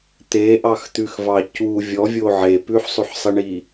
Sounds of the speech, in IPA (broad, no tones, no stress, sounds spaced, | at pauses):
t̪ e ʔ ɑ x t̪ ʉ x v ɑ c u vʲ ɔ vʲ o ʕ e p ʉ ħ sˤ ʉ ħ sˤ i ɳ i